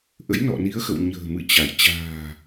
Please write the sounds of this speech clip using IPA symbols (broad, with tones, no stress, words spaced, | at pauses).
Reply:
ʔə̰˧˥jnɔ̰˧˨ni˨˦ə̯xə̰˧˨w ɲə̤ː˨˩mɨ̰˧˨t͡ɕa˧˩j t͡ɕa̤ː˨˩